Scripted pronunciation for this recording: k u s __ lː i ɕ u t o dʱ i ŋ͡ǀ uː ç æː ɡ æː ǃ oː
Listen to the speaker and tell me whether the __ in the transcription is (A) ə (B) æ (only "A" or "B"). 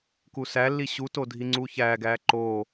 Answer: B